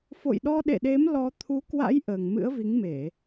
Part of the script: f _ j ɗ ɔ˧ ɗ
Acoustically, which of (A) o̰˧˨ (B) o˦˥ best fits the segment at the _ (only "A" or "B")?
A